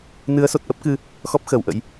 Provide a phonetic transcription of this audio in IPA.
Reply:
n ɨ˨˦ ə̯ s o˨˩ t̚ ʔ ə˦˥ p̚ k ɨ˧ | x ɔ˦˥ p̚ x əː˧˩ w ʔ ə̰˧˥ j

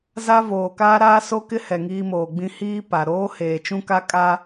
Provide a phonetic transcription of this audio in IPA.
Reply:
z a˦ v oː˨ k aː˦ ɾ aː˦ s o˦ k ɪ˦ h ɛ˨ ŋ iː˦ m oː˨ ɡ͡b ĩ˦ h iː˦ p a˨ ɾ oː˦ h eː˨ t͡ʃ ũ˦ k a˦ kʼ a˦

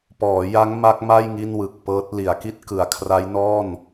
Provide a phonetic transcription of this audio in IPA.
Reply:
p ɔː˩˦ j a˦˥ ŋ m a˦˥ k̚ m a˥˩ j ŋ i˥˩ n w ɯ˨˩ k̚ p ɤː˦˥ t̚ l i˩˦ a̯ k i˥˩ t̚ k ɯ˩˦ a̯ kʰ r a˦˥ j n ɔː˥˩ n

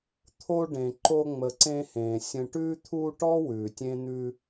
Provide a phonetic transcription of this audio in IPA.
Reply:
t̪ʰ o˦ ɖ ẽ˩ ǃ o˦ ŋ͡m ə˨ ǀ ẽ˦ h ẽ˩ sʲ ə̃˨ ʈ ʉ˦ t̪ʰ u˦ ʈ ɔ˥ w ʉ˩ tʲ ẽ˥ n̪ ʉ˦

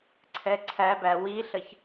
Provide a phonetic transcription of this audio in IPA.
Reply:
ǀʰ ɛ ǀʰ æ b æ w i ɬ ə ç

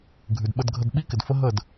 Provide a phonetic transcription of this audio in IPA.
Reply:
ɡʱ ʉ˨ d ɓ ə˧ d ɡʱ ə˧ d ɓ i˦ k ɪ˨ d f ə˦ ɦ ə˦˨ d

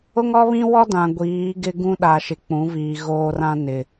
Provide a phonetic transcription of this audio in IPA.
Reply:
ʊ˦ ŋ ɔ˦ β ĩ˦ w ɔ˦ d ã˨ ɡʷ iː˨˦ ɡ ɪ˦ ɡ ũ˦ ɗ a˨ ʃ ɪ˨ k͡p ũ˨˦ v iː˨ ɣ oː˦ r ã˦ n ɪ˨

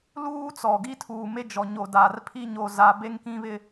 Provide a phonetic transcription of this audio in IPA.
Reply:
l uː˦ t͡s ɔ˨ ɡ i˦ tʰ uː˨ m e˦ d͡ʒ ɔ˨ ɲ o˨ d aː˨ r pʰ i˦ ɲ o˦ z a˦ b e˦ ŋ k ĩ˦ β ɪ˦

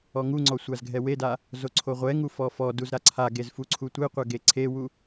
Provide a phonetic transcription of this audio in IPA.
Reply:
ɔ ŋ u ŋ͡ǀ ɔ sʷ a z ɡʱ ɛ w e d a | z o ǀʰ o ʁʷ ɛ ŋ u f ɔ f ɔ d u z ɾ a ǀʰ a ɡ e z f u ǀʰ u tʷ e qʷ ɛ ɡ e ǀʰ e w u

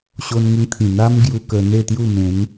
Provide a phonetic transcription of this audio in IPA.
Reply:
ɕ o˧ n ŋ ə˧ ŋ t̪ʰ ĩ˨˩ n̪ a˦ m ɡ j u˧ k ə˧ n̪ e˥˧ t̪ j u˥˧ m ẽ˨˦ n

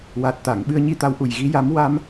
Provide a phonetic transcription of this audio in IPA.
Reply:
w a˨˩ t̚ t̪ a˨˩˨ ŋ ɓ ɨ˧ ə̯ ɲ i˧ t̪ a˧˥ w ʔ u˨˩ j ɣ i˧˥ j a˧˥ m w a˧ m

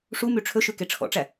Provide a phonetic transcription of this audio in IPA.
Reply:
ʂ u m y ʈ͡ʂʰ ɵ ʃ ʉ k e ʈ͡ʂʰ ɔ̰ ʈ͡ʂ æ

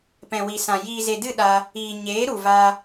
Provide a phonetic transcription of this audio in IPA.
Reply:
p ɛ̃˨ w i˨ s ã˨ j iː˨ z e˨ d ɨ˦˨ ɗ aː˧ | iː˨ ɲ eː˨˦ ɾ u˨ v aː˧

